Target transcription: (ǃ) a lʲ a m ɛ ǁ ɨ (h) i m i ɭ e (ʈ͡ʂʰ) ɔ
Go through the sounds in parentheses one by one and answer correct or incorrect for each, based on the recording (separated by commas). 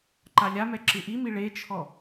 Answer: correct, incorrect, incorrect